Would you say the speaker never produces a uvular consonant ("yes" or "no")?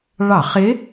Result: no